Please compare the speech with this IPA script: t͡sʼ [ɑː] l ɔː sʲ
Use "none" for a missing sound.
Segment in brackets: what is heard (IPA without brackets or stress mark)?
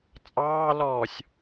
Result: ɑː